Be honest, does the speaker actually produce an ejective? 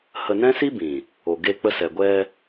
no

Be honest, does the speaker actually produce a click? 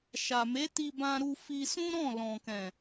no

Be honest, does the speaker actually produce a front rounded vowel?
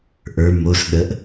no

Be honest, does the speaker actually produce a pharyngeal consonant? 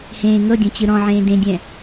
yes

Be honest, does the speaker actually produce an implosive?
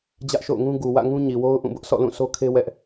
no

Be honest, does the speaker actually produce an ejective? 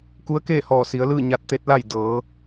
no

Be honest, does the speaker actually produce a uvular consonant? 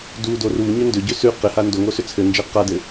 yes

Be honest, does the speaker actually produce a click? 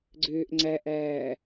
yes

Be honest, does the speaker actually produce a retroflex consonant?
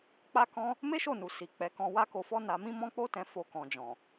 no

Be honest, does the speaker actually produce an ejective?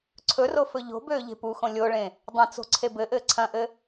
no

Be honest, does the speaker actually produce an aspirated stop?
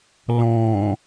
no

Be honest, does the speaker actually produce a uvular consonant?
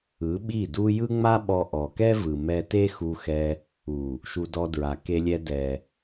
no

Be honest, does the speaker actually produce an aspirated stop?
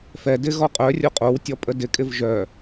no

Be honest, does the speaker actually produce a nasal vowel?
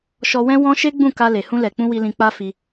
yes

